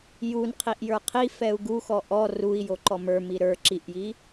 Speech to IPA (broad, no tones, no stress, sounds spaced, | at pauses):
j u n qʰ i ʔ j ə˞ qʰ i f ɛ u̯ ɡ u x ɔ ʔ ɔ r u i̯ j o ǃ ɔ m ə˞ m i ɾ ə˞ ǁ i ʔ j i